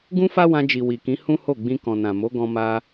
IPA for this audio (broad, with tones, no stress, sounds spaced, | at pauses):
ɡ ũ˦ f a˦ w ã˧ d͡ʒ i˨ w i˨ k ĩ˨˦ h ũ˦ h o˦˨ ɡ͡b ĩ˧ k ɔ̃˨ n ã˨ m o˨˦ ɡ ɔ̃˧ m a˧